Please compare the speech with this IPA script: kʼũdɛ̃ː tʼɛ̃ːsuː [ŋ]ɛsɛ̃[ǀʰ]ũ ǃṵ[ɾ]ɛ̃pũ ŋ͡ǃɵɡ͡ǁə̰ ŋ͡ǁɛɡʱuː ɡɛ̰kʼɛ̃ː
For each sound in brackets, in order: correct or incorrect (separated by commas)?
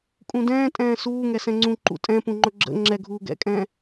correct, incorrect, incorrect